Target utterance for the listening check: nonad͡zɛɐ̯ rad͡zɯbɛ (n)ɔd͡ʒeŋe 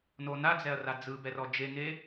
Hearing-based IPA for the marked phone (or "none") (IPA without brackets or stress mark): r